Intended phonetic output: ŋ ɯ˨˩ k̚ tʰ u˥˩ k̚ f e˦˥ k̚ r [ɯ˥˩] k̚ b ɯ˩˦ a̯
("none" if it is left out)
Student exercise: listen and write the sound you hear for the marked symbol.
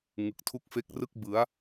ɯ˥˩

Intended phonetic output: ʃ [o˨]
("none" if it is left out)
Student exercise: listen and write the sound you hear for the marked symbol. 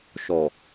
ɔ˨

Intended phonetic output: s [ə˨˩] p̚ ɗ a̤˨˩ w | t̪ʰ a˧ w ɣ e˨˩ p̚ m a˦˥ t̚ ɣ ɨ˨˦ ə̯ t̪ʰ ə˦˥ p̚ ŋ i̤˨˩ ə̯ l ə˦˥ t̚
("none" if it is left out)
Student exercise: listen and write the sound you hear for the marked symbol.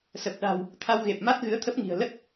ə˨˩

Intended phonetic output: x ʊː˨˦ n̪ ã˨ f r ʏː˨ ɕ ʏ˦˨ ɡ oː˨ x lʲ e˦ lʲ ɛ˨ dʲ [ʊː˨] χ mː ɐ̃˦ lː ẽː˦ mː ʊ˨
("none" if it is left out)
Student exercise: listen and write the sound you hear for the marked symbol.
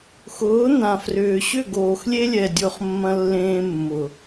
ʊː˦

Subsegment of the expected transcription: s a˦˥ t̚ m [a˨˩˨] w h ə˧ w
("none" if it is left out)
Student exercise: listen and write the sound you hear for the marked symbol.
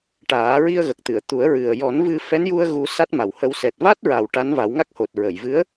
a˨˩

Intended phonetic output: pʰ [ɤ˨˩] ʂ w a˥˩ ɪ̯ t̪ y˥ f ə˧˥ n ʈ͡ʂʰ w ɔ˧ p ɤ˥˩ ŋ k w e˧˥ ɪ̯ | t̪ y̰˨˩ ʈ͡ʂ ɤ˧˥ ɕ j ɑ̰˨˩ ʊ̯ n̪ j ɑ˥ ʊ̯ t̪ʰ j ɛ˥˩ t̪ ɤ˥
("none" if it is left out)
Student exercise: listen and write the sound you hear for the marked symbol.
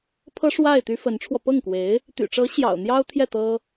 ɤ˥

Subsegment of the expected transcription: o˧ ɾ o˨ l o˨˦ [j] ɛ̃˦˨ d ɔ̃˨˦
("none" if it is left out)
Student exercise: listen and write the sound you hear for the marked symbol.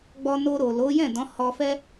j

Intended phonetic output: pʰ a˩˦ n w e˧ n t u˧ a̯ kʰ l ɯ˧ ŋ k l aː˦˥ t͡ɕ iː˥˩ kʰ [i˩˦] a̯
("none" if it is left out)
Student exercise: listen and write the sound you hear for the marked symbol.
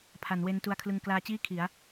i˩˦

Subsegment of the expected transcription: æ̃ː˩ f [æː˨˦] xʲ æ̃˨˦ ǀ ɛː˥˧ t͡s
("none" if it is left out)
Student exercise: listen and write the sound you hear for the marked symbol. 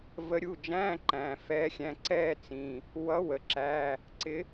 ɛː˨˦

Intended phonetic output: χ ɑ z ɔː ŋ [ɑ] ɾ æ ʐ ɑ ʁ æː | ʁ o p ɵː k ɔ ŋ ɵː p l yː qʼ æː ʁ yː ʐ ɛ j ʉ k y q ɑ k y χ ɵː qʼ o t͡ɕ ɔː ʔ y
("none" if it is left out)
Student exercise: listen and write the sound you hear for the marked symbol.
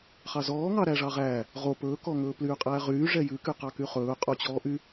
ɑ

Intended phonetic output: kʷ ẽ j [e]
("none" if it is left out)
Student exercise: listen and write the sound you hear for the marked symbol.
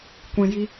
i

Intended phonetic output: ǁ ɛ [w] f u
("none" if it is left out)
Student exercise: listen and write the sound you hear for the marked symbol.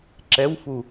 w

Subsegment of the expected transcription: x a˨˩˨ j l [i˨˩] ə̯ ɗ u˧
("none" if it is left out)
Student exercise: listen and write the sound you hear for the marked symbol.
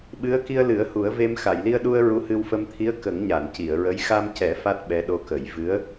i˧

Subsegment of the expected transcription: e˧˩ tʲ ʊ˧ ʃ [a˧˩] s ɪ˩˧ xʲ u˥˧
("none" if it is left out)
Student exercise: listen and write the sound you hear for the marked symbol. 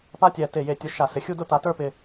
a˧˩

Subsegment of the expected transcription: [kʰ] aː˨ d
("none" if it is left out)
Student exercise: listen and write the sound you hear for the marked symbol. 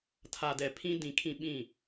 tʰ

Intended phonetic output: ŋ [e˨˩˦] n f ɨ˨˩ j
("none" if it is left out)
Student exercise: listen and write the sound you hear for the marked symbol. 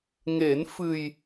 e˨˩˦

